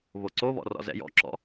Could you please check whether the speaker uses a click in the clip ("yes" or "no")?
yes